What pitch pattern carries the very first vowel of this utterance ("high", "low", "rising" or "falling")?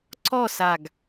falling